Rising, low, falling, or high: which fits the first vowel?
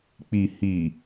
low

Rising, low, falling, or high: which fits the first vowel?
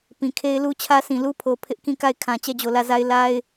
low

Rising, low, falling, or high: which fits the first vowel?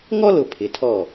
high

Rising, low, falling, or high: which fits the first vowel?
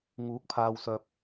rising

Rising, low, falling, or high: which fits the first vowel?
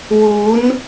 rising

